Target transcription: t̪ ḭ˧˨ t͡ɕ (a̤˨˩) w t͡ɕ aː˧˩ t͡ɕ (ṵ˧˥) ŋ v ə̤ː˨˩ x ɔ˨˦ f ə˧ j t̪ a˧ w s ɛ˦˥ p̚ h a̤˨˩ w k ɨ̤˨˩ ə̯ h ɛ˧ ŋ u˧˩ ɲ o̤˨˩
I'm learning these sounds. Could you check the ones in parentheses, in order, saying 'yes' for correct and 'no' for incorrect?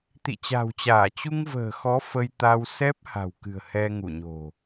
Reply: yes, no

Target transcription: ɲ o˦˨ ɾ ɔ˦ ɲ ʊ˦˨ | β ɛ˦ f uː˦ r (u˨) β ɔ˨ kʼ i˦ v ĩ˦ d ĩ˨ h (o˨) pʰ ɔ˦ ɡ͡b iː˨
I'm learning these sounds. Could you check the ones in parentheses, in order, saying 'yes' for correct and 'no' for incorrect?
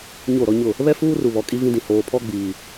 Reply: yes, no

